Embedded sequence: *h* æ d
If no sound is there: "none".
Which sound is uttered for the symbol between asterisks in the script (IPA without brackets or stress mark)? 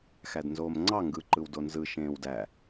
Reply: x